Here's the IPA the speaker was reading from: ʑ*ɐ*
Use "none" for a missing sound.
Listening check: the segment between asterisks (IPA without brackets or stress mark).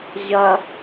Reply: ɐ